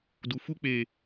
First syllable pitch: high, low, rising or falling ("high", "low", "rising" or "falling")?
low